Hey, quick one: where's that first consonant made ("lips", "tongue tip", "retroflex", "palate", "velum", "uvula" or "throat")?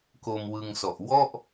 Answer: velum